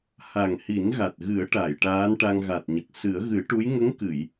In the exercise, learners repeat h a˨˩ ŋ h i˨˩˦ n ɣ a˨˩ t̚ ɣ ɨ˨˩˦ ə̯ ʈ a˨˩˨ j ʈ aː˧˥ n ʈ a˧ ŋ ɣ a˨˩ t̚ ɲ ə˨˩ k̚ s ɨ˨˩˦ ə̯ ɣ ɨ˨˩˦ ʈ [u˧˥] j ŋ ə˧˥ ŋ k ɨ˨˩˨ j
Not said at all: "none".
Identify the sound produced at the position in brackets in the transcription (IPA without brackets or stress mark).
u˧˥